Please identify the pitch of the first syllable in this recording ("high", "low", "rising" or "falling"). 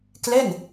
falling